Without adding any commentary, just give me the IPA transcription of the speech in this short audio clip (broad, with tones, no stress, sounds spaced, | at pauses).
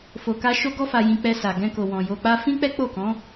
f o˧ k a˦ ʃ o˦ ɡ ɔ˦ f a˧ j ĩ˧ k͡p ɛ˧ s a˨ ɡ ɛ̃˧ k o˨ w ɔ̃˨ j o˧ k͡p a˦ f ĩ˦ k͡p ɛ˦ k͡p o˦˨ k ɔ̃˨˦